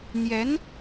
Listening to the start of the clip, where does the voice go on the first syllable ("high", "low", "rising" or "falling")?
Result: rising